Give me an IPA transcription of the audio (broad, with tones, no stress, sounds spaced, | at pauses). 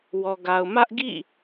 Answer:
w ɔ˨ ɡ a˨ ʊ̯ m ä˦ ʔ ɡ ḭ˦˨